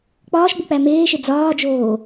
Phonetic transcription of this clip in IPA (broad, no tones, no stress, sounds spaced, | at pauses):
k͡p ɒː ʃ ɡ͡b u k͡p æ m eː ʃ e d͡z ɒː d͡ʒ oː